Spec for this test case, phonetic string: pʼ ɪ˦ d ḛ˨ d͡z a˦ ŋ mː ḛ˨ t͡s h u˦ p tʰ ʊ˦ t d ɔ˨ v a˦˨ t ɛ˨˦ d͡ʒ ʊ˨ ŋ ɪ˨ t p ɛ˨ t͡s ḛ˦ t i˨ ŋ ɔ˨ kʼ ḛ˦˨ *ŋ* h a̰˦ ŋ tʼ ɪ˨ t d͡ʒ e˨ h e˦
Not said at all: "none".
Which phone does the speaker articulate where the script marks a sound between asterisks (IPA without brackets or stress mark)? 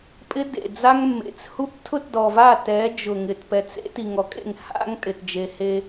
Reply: ŋ